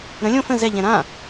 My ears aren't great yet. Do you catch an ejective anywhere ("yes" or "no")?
no